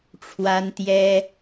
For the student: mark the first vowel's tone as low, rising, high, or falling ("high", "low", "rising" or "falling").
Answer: high